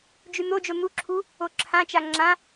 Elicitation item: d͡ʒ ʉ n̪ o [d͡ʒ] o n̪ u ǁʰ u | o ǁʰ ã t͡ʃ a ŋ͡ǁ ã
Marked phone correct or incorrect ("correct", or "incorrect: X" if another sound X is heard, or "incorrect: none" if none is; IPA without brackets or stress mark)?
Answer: correct